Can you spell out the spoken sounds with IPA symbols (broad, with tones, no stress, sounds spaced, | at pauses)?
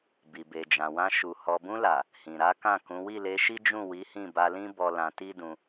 b i˨ b e˨ d͡ʒ ã˨ w ã˧ ʃ u˨ h ɔ˨ b ũ˧ l a˨ | h ĩ˨ ɾ a˨˦ k ã˦˨ k ũ˨˦ w i˦˨ l e˧ ʃ i˦ d͡ʒ ũ˦˨ w i˨˦ h ĩ˦˨ b a˧ l ĩ˦ b ɔ˧ l ã˧ t i˦ d ũ˧